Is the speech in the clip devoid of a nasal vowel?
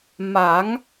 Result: yes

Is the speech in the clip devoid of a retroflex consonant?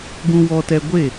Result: yes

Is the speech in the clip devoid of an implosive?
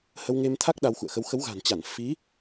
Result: no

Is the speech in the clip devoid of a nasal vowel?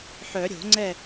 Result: yes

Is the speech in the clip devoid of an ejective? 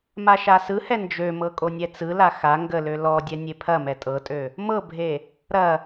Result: no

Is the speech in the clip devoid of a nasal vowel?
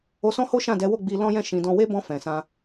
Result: no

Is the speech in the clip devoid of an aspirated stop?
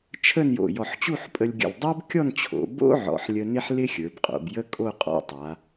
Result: no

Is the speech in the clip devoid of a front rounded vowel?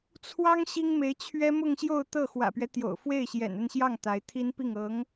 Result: yes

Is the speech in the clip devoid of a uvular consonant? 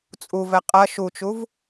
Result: no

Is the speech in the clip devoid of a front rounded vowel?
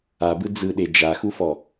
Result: yes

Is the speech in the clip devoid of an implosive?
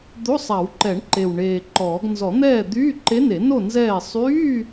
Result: yes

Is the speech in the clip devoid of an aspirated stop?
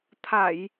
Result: no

